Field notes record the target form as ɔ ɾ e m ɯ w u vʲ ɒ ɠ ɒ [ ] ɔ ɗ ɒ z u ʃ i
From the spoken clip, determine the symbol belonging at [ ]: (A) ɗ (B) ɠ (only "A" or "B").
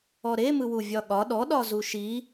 A